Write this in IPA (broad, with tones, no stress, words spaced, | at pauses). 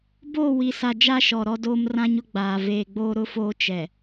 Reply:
boː˦˨wi˨sa˨ d͡ʒa˦ʃɔ˨ ɾɔ˦doː˦mrã˦ɲʊ˦ ɡ͡baː˨ veː˨ɡ͡boː˦ ɾʊ˦foː˦ t͡ʃɛ˨